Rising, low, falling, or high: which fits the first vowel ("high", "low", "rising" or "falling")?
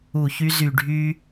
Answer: low